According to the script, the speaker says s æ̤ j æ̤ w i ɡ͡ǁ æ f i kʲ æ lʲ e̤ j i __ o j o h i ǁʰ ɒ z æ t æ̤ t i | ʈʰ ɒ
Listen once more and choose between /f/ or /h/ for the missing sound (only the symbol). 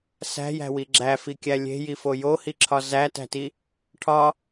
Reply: f